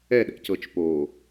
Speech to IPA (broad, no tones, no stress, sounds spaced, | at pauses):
ɛ ɗ ɛ̰ c ɤ t͡ʃ p o